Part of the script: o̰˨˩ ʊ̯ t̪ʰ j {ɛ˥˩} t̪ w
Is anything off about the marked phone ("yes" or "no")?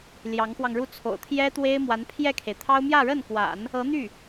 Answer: yes